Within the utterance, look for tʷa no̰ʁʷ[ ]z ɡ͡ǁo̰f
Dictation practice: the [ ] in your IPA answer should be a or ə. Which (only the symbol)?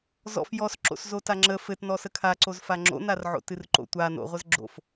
ə